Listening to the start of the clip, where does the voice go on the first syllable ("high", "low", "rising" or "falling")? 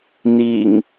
low